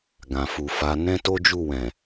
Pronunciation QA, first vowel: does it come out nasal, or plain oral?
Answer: nasal